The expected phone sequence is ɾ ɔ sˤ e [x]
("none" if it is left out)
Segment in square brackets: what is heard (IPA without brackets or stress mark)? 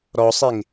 ŋ